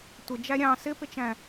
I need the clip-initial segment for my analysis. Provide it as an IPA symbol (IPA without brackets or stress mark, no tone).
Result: tʷ